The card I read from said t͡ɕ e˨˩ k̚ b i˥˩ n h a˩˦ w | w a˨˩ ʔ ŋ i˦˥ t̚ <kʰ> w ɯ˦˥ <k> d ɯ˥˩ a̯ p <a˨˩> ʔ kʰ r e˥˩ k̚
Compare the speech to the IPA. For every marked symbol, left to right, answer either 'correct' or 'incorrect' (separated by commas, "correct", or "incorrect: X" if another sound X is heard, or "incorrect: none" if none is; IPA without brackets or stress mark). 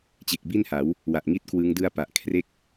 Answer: incorrect: k, incorrect: ŋ, correct